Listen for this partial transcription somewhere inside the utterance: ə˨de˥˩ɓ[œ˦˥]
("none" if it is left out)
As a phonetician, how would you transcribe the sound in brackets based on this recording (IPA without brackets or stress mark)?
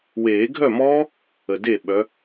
œ˨˦